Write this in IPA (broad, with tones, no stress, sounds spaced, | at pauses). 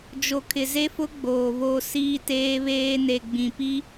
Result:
d͡ʒ o˨ kʰ ɪ˨ z e˦ f ʊ˦ ɡ͡b oː˨ β o˦ s iː˦ t eː˦ β eː˦ n e˨ ɡ͡b ĩ˨ p i˦